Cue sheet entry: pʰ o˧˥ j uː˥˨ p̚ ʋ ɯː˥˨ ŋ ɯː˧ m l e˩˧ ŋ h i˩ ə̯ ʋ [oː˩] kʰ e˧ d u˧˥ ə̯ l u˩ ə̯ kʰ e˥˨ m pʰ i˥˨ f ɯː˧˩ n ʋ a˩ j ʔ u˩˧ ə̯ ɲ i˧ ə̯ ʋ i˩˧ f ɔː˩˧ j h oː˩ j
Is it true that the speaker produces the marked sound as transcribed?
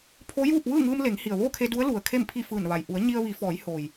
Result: no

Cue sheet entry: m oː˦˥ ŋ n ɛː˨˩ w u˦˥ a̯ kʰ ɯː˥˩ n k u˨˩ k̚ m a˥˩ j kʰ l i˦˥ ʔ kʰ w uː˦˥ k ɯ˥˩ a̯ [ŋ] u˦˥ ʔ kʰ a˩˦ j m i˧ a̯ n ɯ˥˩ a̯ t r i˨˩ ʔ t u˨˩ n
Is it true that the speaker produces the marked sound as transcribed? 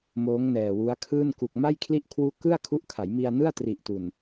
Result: no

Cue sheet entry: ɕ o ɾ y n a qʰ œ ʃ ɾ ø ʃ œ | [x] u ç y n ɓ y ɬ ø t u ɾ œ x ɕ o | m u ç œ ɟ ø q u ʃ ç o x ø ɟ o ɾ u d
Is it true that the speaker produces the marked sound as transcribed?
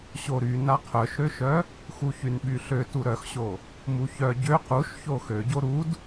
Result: yes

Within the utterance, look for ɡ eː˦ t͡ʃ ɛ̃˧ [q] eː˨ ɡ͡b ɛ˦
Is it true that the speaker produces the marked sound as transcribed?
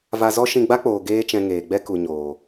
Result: no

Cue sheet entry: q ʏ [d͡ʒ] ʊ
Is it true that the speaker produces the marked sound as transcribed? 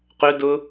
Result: no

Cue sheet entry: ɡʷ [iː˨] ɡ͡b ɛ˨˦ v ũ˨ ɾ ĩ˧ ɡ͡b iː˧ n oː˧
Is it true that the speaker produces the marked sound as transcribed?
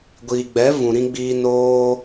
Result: yes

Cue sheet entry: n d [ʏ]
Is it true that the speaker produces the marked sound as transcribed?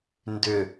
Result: yes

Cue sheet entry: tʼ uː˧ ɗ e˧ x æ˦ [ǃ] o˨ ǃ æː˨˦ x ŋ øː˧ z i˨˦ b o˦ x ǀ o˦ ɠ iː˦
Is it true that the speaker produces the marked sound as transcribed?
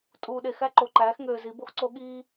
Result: yes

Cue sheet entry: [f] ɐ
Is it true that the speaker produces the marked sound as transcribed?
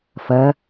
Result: yes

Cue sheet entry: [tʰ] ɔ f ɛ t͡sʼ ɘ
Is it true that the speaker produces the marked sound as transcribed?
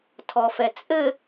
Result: yes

